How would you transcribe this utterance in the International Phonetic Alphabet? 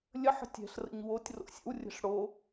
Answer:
lʲəħə̤ tʲɛ̤ɬrə̰ɲ wotʲ ro̰sʲə̰wrʲə̤ɬ ɽo

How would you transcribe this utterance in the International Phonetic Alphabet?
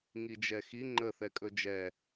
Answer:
ŋid͡ʒɛxi ŋ͡ǃə θɛkʼɵd͡ʒɛ

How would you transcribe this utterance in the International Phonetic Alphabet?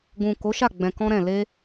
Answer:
ɡũ˨ ko˨˦ʃa˦˨ ɡ͡bɛ̃˧kɔ̃˦ɾɛ̃˦˨ le˧

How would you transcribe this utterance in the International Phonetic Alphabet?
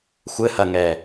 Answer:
xʷɘhɐŋɛ

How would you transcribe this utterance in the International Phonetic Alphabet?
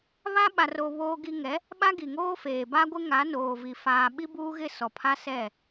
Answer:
βa˦ɓa˨ro˨ βoː˦ɡi˦ ŋɛ˨˦ | ɓa˦ɡi˨ŋoː˦feː˨ ba˦ɡʷɪ˦ ŋa˨˦ noː˨vi˨ faː˨ɓi˦buː˦ɣɪ˦˨ sɔ˨pʰa˦sɛ˦˨

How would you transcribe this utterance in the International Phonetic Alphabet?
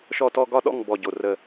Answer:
ʃɔ˥˩tɔ˥˧ ɡɒ˥˩ɗɔ̰˥˩ŋ bɔ˥˩ɟo˧˩rə˥˧

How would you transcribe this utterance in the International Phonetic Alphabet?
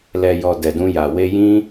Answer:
lɛ˨jɔ˨ dɛ˨dũ˧ja˨ we˧jĩ˦

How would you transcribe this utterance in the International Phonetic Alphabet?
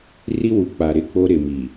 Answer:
ri˦wu˨ k͡pa˨ɾɪ˦˨k͡po˦ ɾɪ˨mi˨

